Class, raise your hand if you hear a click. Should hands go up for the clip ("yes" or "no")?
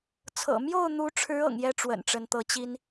no